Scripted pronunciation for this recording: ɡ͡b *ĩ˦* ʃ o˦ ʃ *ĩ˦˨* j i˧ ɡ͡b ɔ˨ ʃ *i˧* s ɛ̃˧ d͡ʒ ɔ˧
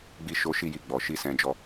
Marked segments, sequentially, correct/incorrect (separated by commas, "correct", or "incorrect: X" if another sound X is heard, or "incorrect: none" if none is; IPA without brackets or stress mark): incorrect: i˦, incorrect: i˦˨, correct